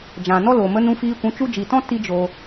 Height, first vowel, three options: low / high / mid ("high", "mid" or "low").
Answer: low